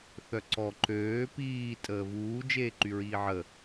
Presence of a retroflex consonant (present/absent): absent